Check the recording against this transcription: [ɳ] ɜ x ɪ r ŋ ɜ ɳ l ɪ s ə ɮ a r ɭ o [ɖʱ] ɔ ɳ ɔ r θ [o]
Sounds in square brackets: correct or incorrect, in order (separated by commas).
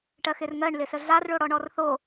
incorrect, incorrect, correct